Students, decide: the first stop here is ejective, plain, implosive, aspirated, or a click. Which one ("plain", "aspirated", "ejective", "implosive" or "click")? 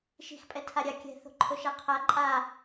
ejective